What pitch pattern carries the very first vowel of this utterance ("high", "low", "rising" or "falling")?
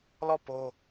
falling